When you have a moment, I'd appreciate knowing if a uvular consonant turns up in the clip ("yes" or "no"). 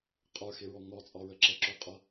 yes